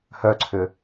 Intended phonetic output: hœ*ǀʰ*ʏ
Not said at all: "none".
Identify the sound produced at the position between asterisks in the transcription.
ǀʰ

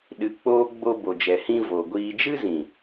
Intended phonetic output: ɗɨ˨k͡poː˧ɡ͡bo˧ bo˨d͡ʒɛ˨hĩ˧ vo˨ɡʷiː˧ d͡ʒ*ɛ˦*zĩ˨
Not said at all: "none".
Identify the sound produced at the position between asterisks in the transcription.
ɨ˦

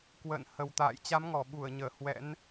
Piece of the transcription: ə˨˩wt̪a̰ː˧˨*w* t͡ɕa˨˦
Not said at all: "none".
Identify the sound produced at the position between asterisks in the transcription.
j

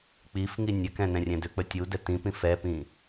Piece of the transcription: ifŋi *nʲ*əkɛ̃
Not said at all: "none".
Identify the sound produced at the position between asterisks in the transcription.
nʲ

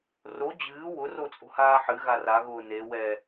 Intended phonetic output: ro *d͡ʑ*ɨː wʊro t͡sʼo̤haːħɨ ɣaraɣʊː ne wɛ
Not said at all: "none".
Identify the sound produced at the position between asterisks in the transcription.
d͡ʑ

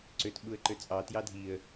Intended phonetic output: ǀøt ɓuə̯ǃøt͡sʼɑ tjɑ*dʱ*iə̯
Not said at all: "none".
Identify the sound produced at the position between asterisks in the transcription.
dʱ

